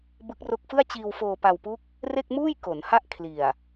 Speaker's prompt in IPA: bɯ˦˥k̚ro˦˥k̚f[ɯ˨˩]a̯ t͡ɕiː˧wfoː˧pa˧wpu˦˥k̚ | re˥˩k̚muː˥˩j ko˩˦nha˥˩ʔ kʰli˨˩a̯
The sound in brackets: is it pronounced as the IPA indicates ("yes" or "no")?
no